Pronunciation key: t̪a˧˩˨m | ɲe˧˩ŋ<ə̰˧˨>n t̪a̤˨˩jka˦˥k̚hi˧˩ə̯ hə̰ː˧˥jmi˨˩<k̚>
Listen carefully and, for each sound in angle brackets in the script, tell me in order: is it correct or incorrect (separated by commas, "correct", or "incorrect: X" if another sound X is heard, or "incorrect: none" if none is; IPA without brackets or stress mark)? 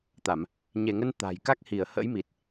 incorrect: ə˧, incorrect: t̚